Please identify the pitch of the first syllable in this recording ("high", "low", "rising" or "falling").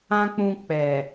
high